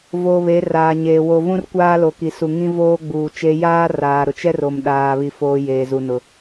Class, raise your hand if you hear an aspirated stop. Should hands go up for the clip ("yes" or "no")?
no